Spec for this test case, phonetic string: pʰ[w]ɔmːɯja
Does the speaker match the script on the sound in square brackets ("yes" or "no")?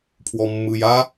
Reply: yes